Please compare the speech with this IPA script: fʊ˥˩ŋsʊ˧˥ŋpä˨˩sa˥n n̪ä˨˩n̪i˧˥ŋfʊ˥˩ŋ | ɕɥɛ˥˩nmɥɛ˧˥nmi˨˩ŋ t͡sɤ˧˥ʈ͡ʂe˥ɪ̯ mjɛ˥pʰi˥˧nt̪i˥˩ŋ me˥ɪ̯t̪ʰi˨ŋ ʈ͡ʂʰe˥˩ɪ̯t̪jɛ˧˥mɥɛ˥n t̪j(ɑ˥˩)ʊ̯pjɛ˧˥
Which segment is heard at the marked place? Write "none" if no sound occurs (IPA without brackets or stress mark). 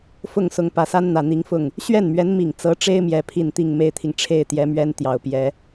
ɑ˨˩